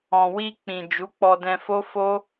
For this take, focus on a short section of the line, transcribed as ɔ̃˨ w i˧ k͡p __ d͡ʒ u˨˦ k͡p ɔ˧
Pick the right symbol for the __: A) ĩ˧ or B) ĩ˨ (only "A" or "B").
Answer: B